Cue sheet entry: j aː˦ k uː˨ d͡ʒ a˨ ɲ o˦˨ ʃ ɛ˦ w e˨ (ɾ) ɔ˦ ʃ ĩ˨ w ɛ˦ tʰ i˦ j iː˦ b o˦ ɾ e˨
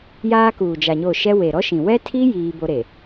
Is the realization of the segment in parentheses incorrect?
no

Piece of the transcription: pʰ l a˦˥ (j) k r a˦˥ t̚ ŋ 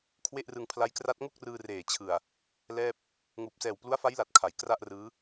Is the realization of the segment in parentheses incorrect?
no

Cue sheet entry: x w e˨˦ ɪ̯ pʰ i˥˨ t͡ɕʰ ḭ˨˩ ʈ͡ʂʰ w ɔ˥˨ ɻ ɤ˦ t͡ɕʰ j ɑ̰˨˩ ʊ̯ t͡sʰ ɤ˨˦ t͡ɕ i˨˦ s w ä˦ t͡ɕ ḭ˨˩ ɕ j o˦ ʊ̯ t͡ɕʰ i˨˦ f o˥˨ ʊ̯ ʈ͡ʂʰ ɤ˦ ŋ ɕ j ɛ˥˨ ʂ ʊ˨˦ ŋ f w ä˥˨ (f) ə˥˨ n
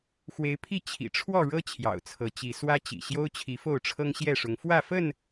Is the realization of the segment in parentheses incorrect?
no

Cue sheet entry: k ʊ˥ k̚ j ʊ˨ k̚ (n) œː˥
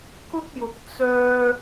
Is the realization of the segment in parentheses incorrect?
yes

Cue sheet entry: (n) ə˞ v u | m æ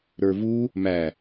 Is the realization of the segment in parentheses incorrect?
yes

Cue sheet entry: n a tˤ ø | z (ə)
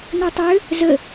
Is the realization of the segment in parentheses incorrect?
no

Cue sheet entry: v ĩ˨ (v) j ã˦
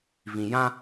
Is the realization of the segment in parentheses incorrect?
yes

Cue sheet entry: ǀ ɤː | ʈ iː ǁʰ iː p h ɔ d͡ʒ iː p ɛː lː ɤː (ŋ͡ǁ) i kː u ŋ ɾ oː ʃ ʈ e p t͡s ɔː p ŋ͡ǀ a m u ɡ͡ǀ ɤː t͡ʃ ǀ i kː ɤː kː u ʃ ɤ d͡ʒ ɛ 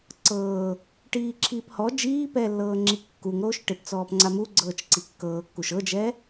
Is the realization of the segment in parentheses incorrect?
no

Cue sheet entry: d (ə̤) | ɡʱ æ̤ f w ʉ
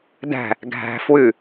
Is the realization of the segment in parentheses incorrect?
yes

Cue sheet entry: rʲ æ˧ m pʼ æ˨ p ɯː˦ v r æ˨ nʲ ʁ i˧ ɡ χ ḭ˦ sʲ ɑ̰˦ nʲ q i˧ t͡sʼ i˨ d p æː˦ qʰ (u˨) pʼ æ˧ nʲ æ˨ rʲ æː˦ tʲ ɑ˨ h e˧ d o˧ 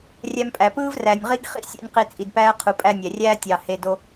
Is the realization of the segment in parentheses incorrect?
no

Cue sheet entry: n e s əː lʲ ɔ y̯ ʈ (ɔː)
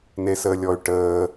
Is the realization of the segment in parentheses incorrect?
yes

